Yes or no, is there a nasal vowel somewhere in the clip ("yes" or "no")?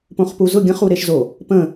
yes